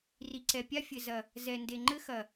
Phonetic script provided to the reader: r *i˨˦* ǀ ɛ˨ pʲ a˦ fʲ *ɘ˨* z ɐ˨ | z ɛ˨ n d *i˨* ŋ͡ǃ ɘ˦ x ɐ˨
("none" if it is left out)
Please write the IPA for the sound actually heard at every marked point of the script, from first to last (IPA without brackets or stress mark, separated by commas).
i˨, ɘ˨, e˨